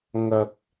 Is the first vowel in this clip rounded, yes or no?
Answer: no